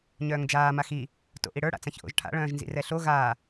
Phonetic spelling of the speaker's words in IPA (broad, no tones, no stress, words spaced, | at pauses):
ɲœːŋd͡ʒaː maxi | to̰ʔiɽə˞ ɽa̰t͡sãçʔo̰ʒʈʰa̰ ɭœ̃ːʒnzḭrɛɬo ɣaː